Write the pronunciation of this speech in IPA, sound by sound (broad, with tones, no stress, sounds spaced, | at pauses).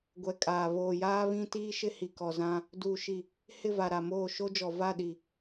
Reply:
ɡʷ ɛ˨ kʼ aː˨ β oː˨ j aː˦ β ĩ˦ t iː˦ ʃ ɪ˦ h i˨ k ɔ˨ z ã˦ | d uː˨ ʃ i˨ | h ɪ˦˨ v a˨ ɾ a˨ m oː˦˨ ʃ o˦ d͡ʒ ɔ˨ v a˦˨ ɗ i˨